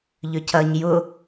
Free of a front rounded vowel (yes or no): no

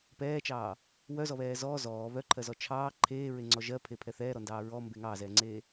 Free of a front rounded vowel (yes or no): no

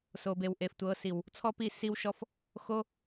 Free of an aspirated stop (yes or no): no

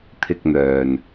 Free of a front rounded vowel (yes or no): no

